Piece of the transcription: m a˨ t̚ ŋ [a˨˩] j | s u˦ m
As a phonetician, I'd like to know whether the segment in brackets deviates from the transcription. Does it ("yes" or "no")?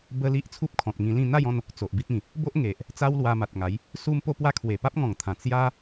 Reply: yes